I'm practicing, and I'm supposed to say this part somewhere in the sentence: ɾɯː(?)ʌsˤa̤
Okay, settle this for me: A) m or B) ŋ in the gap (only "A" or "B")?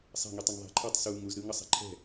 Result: B